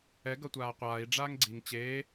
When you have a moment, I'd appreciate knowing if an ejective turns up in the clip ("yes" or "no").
no